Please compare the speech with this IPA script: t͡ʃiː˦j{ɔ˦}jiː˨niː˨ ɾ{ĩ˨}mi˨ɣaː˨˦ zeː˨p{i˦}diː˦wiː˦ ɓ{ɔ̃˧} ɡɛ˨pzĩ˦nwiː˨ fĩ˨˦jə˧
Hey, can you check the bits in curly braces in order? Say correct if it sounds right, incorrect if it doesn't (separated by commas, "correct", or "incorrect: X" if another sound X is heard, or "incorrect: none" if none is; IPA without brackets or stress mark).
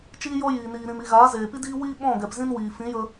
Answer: correct, correct, correct, incorrect: ɔ̃˦˨